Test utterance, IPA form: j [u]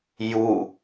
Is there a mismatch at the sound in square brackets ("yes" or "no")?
no